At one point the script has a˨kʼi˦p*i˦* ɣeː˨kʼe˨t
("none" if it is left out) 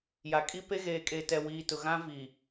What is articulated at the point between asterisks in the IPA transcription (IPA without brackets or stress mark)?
e˦